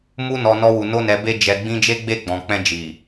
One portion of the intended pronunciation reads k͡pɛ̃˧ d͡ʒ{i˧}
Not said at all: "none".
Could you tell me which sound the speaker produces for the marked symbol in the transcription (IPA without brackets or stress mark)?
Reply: i˨